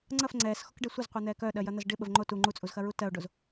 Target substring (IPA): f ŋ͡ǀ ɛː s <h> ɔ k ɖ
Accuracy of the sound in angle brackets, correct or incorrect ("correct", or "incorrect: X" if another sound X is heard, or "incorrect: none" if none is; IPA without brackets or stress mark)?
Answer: incorrect: x